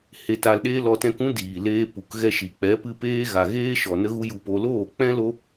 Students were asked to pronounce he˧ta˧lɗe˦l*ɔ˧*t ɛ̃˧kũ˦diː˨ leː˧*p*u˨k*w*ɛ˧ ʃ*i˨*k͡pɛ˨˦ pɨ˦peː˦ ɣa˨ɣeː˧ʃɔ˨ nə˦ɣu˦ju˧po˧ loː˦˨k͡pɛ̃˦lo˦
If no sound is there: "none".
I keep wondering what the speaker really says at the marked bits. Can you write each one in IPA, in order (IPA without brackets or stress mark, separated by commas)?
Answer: ɔ˧, p, ɣ, i˨